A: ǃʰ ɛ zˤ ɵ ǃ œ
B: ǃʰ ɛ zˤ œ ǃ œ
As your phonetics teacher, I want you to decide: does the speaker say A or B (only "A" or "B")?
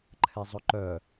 A